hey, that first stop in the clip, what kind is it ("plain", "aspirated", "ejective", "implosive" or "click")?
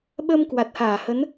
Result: implosive